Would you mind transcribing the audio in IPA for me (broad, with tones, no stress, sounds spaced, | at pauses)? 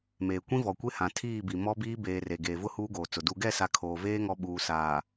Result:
m eː˨ kʷ ĩ˦ v ɔ˨ kʷ e˦ h ã˨ tʰ iː˦˨ b i˨ m ɔ˦ b iː˦ b eː˨ r e˨ ɡ eː˨ v ʊ˦ h uː˦ ɡ oː˨ t͡s ʊ˨ d u˨ ɡ ɛ˦˨ s a˨ kʰ oː˨ v eː˦ ŋ ɔ˦ ɓ uː˨ s aː˨